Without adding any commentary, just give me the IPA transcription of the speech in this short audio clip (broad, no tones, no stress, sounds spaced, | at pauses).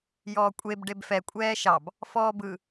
j ɔː kʷʼ e b ɖ e b f ɛ kʷʼ ɛː ʃ ɑ b | f ɔː b ɯ